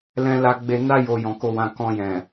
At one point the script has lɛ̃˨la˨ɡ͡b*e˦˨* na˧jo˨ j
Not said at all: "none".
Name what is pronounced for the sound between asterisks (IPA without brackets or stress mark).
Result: e˨